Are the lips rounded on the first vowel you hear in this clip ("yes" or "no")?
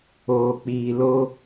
yes